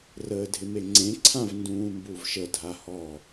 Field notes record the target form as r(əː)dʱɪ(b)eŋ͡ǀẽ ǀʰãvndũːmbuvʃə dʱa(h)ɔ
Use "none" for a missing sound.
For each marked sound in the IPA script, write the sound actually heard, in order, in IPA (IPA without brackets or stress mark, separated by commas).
əː, m, h